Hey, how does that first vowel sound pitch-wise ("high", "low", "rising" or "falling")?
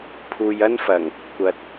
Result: low